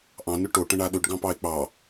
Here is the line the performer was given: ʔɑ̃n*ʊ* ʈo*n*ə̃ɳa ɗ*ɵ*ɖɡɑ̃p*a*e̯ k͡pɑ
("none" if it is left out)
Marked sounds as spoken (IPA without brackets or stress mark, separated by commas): ʊ, ʈ, ɵ, ɑ